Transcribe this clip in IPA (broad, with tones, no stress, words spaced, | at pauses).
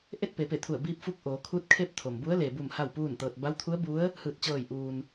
ʔe˥˨t̚pe˩˧pe˧˩t̪ʰu˧˩ə̯ biː˧p̚fu˧k̚ʔoː˩˧ kʰu˧˥t̚kʰe˥˨p̚t̪ʰo˩mbu˧˥ə̯ le˩bu˧˩m ha˥˨wpuː˥˨nt̪ɤː˧t̚ ba˧˥wt̪ʰu˧˥ə̯bu˧˥ə̯ | hɯː˧˩t̚t͡ɕɤː˧˩j ʔuː˩n